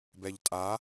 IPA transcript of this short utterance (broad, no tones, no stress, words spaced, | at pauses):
bɛʎtʼa